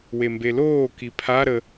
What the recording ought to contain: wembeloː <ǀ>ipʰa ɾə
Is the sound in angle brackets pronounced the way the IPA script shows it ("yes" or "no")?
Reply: no